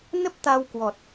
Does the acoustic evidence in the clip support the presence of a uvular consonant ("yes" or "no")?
no